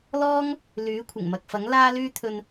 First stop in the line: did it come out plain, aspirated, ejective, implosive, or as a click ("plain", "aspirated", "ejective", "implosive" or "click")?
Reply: aspirated